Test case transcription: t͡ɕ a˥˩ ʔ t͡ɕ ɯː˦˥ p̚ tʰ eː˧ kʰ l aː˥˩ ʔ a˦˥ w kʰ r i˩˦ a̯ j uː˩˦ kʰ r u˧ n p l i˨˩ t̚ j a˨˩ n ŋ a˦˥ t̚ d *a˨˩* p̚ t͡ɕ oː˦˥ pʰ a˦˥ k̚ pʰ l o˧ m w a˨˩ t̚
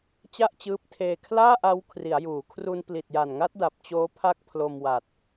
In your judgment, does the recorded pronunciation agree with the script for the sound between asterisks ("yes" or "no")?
yes